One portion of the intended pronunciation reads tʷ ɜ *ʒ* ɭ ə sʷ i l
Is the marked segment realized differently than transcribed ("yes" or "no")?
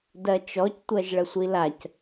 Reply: no